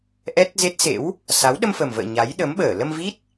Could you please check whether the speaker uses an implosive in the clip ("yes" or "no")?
yes